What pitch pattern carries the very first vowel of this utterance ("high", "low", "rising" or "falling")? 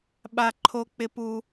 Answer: high